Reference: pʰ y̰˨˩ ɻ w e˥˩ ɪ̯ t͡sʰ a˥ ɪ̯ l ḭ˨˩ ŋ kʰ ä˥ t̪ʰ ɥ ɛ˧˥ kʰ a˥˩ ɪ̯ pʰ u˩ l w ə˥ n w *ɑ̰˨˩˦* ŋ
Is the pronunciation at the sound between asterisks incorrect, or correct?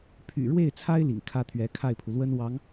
incorrect: ɑ˧˥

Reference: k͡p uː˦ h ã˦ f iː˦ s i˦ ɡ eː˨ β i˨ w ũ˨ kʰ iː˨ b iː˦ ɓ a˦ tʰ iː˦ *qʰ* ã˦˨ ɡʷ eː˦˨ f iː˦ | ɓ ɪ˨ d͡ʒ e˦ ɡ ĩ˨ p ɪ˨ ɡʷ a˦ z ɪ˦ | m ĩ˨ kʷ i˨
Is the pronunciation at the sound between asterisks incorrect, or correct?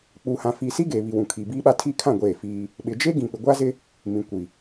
incorrect: kʰ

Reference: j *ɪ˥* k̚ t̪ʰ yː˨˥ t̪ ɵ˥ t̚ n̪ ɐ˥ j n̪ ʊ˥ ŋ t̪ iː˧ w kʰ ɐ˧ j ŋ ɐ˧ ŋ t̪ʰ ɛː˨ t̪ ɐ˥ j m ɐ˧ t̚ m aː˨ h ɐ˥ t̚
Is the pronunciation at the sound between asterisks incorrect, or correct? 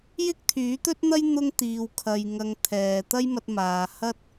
correct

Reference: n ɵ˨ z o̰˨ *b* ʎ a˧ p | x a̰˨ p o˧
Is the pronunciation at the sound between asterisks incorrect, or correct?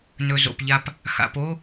incorrect: p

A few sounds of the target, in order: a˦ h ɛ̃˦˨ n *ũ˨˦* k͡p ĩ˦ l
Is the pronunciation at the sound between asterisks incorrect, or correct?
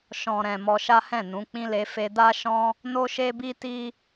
correct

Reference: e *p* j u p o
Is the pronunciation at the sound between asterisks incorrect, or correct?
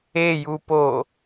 incorrect: none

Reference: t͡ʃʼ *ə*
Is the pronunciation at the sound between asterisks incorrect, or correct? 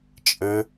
correct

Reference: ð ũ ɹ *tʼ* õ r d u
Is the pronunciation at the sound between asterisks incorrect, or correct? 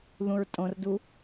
correct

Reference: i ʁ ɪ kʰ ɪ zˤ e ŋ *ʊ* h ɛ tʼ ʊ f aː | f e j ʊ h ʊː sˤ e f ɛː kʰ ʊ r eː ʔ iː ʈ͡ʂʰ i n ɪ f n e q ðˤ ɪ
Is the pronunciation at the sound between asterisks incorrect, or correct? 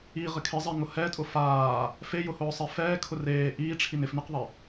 correct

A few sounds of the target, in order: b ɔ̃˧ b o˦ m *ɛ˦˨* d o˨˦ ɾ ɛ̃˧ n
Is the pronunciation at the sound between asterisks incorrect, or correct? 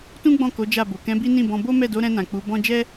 correct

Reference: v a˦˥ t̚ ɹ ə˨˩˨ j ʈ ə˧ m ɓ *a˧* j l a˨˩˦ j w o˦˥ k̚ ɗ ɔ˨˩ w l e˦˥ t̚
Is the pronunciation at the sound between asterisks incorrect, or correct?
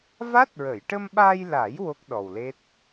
correct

